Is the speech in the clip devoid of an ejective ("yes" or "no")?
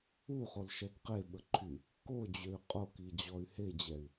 no